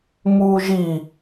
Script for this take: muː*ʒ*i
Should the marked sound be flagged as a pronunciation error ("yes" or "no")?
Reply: no